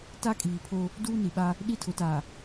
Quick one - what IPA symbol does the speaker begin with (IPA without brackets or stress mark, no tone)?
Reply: t